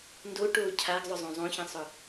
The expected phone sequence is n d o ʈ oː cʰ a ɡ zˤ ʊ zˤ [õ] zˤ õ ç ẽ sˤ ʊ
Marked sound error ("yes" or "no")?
no